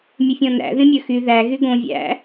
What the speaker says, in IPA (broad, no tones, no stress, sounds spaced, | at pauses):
mʲ ɵ fʲ ɔ̃ n æ̰ ð ĩ mʲ ɵ x y ð æ ɣ y ɡ õ vʲ æ̰